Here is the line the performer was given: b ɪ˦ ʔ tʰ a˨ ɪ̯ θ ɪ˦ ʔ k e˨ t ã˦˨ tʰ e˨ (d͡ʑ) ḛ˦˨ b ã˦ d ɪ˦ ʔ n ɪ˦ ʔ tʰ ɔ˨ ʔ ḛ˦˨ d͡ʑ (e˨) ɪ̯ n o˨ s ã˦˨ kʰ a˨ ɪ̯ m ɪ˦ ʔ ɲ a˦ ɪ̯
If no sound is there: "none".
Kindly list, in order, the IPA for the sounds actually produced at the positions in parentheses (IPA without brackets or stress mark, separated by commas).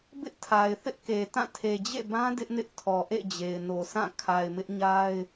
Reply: d͡ʑ, e˨